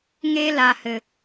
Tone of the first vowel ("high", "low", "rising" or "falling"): high